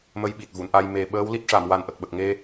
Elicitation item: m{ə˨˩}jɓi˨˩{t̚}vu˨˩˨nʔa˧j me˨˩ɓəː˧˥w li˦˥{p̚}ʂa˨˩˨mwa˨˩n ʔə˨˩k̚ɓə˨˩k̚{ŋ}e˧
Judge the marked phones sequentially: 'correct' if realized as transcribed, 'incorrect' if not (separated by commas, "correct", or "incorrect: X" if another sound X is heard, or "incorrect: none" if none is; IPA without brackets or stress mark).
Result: incorrect: ə˧, correct, incorrect: t̚, correct